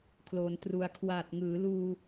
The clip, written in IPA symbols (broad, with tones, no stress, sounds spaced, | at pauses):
kʰ l o˩˦ n t r u˨˩ a̯ kʰ w aː˨˩ t̚ ŋ ɯː˩˦ l uː˧